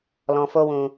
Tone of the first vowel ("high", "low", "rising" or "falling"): low